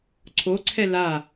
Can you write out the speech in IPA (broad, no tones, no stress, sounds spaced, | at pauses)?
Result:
ǀʰ o ǀʰ ɛ l a